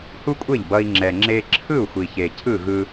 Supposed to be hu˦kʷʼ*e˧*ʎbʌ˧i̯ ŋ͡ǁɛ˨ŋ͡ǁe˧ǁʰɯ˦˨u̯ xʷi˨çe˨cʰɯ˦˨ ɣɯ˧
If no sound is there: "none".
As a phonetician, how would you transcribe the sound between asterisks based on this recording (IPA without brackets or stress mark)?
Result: e˦˨